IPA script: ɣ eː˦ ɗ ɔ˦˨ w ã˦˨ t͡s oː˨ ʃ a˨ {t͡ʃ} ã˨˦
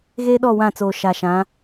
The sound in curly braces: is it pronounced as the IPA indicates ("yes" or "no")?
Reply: no